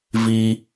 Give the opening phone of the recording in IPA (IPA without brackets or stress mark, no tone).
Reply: v